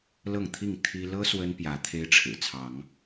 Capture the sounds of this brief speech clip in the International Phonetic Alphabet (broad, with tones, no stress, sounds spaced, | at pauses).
l ɤ˥˨ ŋ t̪ʰ i˥˨ ŋ t̪ʰ i˦ l ɤ˦ s w ə˦ n p j ä˨˦ t̪ʰ e˦ ɪ̯ ʈ͡ʂʰ ɻ̩˨˩ t͡sʰ ɑ˨˦ ŋ